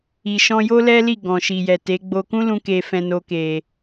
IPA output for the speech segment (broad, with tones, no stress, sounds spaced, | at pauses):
i˨ ʃ ɔ̃˧ j o˦ l ɛ˦ l i˦˨ ɡ ɔ̃˨ ʃ i˨ j ɛ˨ t e˨˦ ɡ͡b o˧ k ũ˦ l ũ˧ k e˧ f ɛ̃˧ n o˧ k e˨